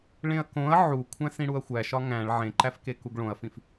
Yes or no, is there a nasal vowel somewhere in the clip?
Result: yes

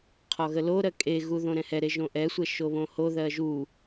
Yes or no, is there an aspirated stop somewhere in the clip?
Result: yes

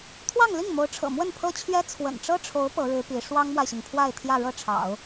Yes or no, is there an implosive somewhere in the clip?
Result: no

